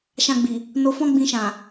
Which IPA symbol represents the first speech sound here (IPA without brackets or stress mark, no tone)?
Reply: ʃ